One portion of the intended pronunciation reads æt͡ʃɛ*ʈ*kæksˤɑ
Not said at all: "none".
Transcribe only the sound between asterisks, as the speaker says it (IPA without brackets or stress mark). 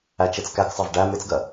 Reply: t͡s